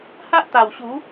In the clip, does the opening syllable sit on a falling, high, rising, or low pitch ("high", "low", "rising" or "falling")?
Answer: high